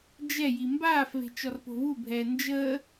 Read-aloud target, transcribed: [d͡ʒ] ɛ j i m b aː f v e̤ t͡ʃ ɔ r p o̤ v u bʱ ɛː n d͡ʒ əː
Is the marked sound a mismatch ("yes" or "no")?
no